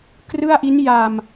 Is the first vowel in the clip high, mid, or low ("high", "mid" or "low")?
high